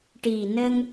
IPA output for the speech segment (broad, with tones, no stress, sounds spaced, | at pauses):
ʈ i˨˩ n ə˧ ŋ